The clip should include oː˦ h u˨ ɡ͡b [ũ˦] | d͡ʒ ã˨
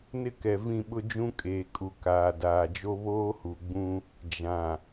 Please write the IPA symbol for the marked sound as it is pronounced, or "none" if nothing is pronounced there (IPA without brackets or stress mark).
ũ˦